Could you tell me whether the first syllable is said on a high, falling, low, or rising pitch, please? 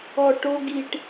low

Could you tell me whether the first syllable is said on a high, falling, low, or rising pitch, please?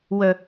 low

